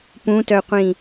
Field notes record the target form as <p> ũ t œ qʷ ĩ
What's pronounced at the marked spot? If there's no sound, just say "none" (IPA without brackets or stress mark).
p